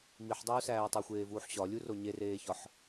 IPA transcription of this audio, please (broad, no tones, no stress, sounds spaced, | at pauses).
m i ħ dˤ uː s æː tˤ o xʷ eː v uː ħ ɕ ɒ lʲ u r o ɲ e r eː ç ɒ ħ